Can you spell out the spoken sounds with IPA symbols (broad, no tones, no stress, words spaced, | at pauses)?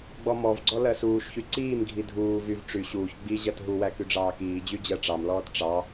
ɡ͡bɔmɔvɡ͡ǀɔ lɜsuːʃçy ǀiːmɡʱi dʱuː vyv ʈ͡ʂy ɕuːç ɡ͡bi ʑɜtɦuwæ kyɖ͡ʐɑːkiːd͡ʑy d͡ʑɜʈ͡ʂɑmlɔːt ʈ͡ʂɑ